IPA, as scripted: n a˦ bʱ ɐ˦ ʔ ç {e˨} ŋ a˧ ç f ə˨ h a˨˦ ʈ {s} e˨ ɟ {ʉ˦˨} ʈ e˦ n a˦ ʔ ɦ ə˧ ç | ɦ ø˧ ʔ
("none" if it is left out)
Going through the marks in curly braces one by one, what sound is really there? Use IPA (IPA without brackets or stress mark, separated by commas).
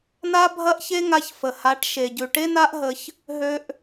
e˦, ʃ, ʉ˨